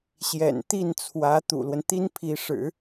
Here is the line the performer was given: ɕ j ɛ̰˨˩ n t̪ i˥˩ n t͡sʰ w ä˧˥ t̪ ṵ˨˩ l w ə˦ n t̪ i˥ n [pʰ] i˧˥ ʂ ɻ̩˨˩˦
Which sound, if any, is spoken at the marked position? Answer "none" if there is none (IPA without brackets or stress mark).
pʰ